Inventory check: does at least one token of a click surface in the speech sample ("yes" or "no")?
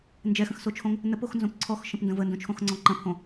yes